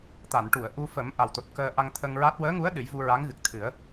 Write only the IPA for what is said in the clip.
t̪a˨˩˨nʈu˨˩˨ə̯ʔu˧ fə˨˩˦m ʔa˨˩wt̪o˨˩t̚kəː˧ ʔa˧ŋt̪ʰə˧ŋɹa˦˥t̚ wəː˧˥ŋu˧˥ə̯ ɗɨ˨˩˦jvu˧ɹa˧˥ŋɣɨ˨˩k̚ t̪ʰɨ˨˩˦ə̯

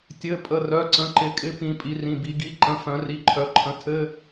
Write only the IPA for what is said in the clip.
tʲɘ˧˥˧ pʼə˧˥˧rœ˧˥˧ǀə̃˧˥˧ǃɪ˧˥ kʼɪ˧˥ pĩ˧˥ pʼi˧˥rĩ˧˥˧bi˧˥ ɡi˧˥˧ǃə̃˧˥˧ fœ̃˧˥ri˧˥˧ǃʰœ˧˥ǃʰə̃˧˥ tʰɘ˧˥˧

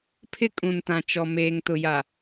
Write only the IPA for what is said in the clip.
pʰɪ˦kʼũ˨ntã˨ t͡ʃɔ˨ meː˨ŋtʊ˨ja˨

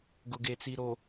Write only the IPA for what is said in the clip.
ɡʊ˨ɡe˨t͡si˨ɾo˨

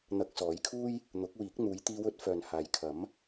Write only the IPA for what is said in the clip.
n̪ɐ˧k̚sɔː˨˥jkʰuː˥j | n̪ʊ˨˥k̚wiː˨˥k̚ n̪uː˨˧jt̪iː˧wɵ˧t̚ fœː˨nhaː˨jkʰɐ˨˥m

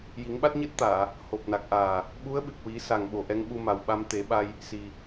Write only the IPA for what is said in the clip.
ji˨˩˦ŋɓa˦˥t̚ɲɨ˦˥t̚t̪aː˨˩˨ | ho˨˩p̚na˨˩k̚ʔaː˨˩ | ɓu˧˥ə̯ɓɨ˨˩k̚wi˨˩˦ sa˨˩ŋɓo˨˩ ʔɛ˧ŋɓu˧ma˨˩w ɓa˧mt̪e˨˩˦ɓa˧j | si˨˩

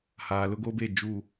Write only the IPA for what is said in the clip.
haː˨lʊ˦ɡoː˦be˦˨ d͡ʒu˦˨

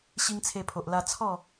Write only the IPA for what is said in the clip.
ɕi˦ŋt͡sʰe˧pʰo˨ʔ la˧ t͡sʰɔ˥˧

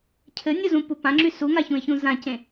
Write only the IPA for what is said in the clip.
cʰɘnʲuzũpu pãŋ͡ǁy suŋaçũɪ̯çũ zãcẽ

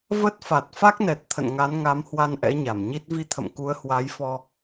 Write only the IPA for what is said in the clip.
və˦˥t̚ fa˨˩t̚ fa˦˥k̚nɛ˨˩t̚ t̪ʰə̰˧˨nŋa˨˦nŋa˨˦mhwa˧n ʔɛ̰˧˥ɲa˧˩mɲi˦˥t̚ vi˧t̪ʰə̰˧˨mku˨˦ə̯ hwa˨˦jfɔ˧

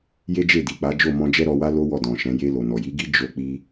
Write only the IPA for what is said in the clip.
je˦d͡ʒe˦˨di˨k͡pa˨˦ d͡ʒo˦˨mɔ̃˧ d͡ʒɛ˦ɾɔ˧wa˦ lo˦wɔ˦˨dɔ̃˨ʃɛ̃˨˦ je˧lo˨ nɔ˨ji˨˦ɡi˦ d͡ʒo˧k͡pi˧

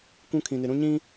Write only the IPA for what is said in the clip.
kʷũ˦kʰĩ˨nɪ˨ɾũ˦ ɲĩ˦

